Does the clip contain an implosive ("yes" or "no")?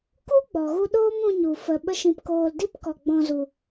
yes